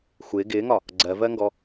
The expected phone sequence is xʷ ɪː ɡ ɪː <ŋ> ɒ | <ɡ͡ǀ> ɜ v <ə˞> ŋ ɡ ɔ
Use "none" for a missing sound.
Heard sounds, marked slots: ŋ, ɡ͡ǀ, ɜ

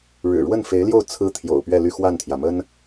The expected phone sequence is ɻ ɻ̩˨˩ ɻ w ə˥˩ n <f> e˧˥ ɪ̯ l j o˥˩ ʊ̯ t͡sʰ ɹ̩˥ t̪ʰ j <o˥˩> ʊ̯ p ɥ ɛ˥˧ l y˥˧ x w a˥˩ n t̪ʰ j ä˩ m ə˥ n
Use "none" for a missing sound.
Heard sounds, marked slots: f, o̰˨˩

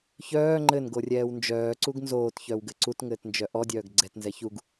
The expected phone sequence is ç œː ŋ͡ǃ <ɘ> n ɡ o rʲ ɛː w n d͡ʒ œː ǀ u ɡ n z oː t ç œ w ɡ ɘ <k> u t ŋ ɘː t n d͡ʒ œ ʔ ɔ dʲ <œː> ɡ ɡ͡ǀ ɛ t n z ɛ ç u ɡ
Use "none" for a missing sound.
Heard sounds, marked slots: ɘ, ǀ, œː

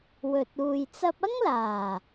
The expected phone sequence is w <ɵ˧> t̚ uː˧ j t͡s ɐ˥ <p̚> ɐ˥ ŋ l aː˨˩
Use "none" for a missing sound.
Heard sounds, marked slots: ɵ˧, p̚

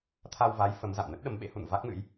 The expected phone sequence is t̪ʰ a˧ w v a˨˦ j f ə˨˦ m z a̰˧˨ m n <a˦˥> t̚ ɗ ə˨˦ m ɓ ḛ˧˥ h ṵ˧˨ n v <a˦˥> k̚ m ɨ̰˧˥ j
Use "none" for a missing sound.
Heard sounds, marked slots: ə˦˥, a˦˥

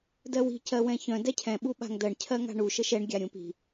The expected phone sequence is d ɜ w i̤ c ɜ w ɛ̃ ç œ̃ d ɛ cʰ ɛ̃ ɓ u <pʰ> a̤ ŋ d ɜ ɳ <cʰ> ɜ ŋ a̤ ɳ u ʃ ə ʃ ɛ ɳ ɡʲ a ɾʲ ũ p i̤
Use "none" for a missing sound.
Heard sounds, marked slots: ɓ, cʰ

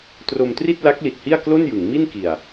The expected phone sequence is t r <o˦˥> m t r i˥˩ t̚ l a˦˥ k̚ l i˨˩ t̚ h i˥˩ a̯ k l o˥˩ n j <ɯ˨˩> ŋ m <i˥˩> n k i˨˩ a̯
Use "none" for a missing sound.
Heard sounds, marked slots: o˧, ɯ˩˦, i˥˩

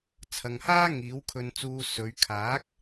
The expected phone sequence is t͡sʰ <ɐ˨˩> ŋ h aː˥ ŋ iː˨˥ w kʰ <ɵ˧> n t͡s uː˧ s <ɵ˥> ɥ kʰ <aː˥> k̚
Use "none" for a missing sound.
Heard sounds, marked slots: ɐ˨, ɵ˧, ɵ˨˧, aː˨˥

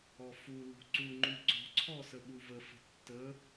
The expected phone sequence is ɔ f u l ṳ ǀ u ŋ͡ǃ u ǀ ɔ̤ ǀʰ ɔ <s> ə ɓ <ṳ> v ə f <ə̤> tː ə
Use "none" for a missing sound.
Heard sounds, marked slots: s, u, ə̤

